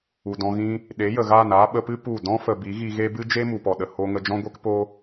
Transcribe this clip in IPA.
u˨ d ɔ̃˧ ɣ ĩ˦ | ɗ e˨˦ j ə˨ ɣ aː˦˨ n aː˦ ɓ ə˧ p ɨ˦ p u˦˨ d ɔ̃˦ f ə˨ b i˨˦ ɣ i˧ ɣ e˦ b ɨ˦ d͡ʒ e˦ m u˨ p ɔ˨ ɗ ə˨ h o˧ ŋ ə˧ d͡ʒ ɔ̃˦ ɡʷ e˦ k p o˦

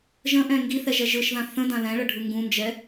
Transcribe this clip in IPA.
ʒ ə̃ ʔ ɛ̃ ŋ ɡ i θ ɛ ʒ ɛ ʒ ɯ ʃ ð ã θ ə̃ d ã l ɛ̃ ɭ ə ɖʱ ɯ ŋ ɡ ũ n d͡ʒ ɛ

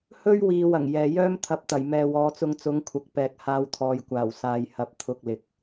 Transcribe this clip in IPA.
h ɵ˥ ɥ w iː˨ w ɐ˨˩ ŋ j ɛː˨ j œː˥ m t̪ʰ ɐ˨˥ p̚ t̪ ɐ˨˩ j m ɛː˨ w ɔː˨˧ t͡s ʊ˧ ŋ t͡s ʊ˨˥ ŋ kʷʰ ɐ˨˥ k̚ p ɛː˨ k̚ h aː˧ w t̪ʰ ɔː˨ j kʷ aː˨˩ w s aː˧ j h ɐ˨˥ p̚ t̪ʰ ʊ˧ k̚ l ɪ˨˥ k̚

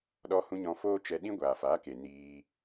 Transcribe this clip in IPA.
ɗ ɔ˧ h ũ˧ ɲ ɔ̃˧ f oː˦ t͡ʃ ɛ˧ ɗ ĩ˦ ɡʷ aː˨ f a˨˦ k e˨ n iː˧

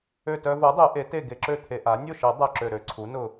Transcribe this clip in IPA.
ø˧˩ t œ˧ v u˩˥ dˤ ø˨˩˦ ʔ e˩˥ t e˥˩ ɡ e˧ ǁ ø˥˩ t̪ʰ e˧ ʔ a˩˥ nʲ ʊ˥˩ ʃ e˨˩˦ dˤ œ˧˩ ǁ ø˧˩ ɾ ø˧ ǀʰ u˩˥ n ʊ˧˩

